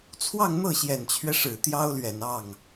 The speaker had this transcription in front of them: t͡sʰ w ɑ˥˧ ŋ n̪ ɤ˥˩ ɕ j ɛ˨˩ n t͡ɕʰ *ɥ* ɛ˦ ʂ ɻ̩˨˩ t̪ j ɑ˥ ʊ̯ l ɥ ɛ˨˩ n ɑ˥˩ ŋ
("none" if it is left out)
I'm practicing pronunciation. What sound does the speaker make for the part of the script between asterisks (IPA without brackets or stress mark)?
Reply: ɥ